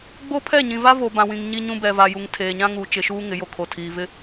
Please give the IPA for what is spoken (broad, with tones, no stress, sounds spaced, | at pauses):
ɡ͡b o˦ pʰ ɛ˦˨ ɲ ĩ˨ v a˦ v o˨ b ã˨ w ĩ˨ ŋ ɲ i˦ ɲ ũ˦ b ɛ˨ v a˨ j u˨ ŋ tʰ eː˨ ɲ ã˦ ŋ uː˨ t͡ʃ ɪ˨ ʃ uː˦ ŋ ɪ˨˦ j o˨ kʰ o˨ tʰ iː˨ v ɪ˦